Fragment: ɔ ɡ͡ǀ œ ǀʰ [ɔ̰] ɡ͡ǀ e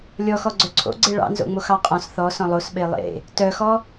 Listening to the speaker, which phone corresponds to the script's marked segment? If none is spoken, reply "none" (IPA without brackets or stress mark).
o̰